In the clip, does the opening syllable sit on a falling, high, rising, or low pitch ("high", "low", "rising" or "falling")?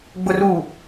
low